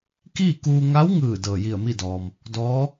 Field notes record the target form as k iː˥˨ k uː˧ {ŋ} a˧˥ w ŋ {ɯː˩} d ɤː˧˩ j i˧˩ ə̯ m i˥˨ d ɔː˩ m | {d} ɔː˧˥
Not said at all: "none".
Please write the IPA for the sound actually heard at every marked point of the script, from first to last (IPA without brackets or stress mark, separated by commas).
ŋ, ɯː˧˩, d